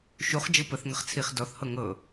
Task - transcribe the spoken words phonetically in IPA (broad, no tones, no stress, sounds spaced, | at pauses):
ʃ u χ d͡ʒ ɤ p ə θ ŋ ə χ t͡sʰ i χ d ɔ θ h ɤ ŋ ɤ